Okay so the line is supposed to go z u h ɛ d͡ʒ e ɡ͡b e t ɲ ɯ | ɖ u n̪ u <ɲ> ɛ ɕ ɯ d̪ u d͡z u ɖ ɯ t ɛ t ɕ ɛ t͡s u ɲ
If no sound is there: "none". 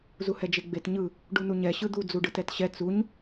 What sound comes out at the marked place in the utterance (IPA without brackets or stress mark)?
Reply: ɲ